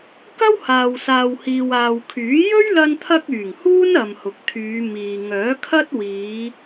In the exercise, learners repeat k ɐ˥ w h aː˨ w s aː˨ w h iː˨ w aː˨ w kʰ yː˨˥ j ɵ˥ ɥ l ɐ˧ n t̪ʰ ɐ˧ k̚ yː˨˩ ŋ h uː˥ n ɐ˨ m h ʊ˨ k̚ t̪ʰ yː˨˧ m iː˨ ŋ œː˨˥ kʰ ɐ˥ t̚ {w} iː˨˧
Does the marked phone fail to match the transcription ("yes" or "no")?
no